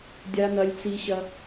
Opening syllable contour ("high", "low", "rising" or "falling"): high